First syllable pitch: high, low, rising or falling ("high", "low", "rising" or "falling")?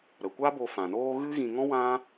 low